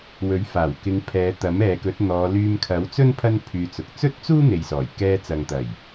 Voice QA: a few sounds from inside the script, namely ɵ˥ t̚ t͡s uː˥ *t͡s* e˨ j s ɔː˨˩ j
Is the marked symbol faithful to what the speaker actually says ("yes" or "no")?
no